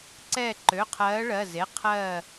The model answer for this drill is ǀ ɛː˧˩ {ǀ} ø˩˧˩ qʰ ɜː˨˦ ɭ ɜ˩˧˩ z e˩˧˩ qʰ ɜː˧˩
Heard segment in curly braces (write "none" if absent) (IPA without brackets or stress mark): ǃ